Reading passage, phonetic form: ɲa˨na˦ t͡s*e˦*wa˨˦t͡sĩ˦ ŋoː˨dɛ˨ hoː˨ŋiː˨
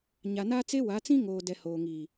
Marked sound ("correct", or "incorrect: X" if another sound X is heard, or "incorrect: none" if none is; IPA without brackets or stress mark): correct